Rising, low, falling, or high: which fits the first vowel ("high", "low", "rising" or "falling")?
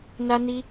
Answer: high